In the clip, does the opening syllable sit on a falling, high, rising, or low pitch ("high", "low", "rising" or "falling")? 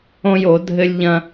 high